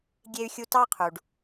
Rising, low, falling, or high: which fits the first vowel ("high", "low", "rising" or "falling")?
high